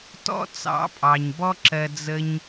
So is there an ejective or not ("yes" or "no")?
yes